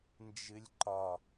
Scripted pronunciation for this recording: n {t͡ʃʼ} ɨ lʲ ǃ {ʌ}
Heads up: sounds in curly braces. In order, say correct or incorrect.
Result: incorrect, incorrect

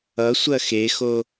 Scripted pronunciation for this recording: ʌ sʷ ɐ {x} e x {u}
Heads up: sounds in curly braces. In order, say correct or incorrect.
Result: correct, incorrect

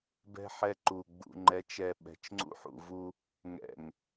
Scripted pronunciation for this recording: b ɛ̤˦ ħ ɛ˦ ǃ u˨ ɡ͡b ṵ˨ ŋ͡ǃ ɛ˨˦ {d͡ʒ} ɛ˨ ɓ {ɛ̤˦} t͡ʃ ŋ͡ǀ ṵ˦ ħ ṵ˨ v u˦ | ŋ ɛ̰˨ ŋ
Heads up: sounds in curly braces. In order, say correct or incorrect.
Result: incorrect, incorrect

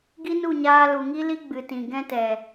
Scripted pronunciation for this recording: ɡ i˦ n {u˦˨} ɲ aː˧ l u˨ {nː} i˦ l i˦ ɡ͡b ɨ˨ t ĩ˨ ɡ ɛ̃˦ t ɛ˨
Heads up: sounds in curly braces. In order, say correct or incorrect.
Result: correct, incorrect

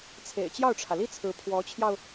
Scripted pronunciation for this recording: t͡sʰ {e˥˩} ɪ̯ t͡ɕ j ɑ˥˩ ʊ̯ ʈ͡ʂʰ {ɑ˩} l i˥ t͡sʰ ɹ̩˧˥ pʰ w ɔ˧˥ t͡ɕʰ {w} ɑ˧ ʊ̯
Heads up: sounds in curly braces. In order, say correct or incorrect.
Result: incorrect, incorrect, incorrect

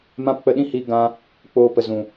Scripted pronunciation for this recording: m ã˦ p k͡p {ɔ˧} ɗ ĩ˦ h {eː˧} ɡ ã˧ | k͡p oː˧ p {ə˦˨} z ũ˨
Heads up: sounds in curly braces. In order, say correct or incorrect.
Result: incorrect, incorrect, incorrect

